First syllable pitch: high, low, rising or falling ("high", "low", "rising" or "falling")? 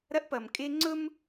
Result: high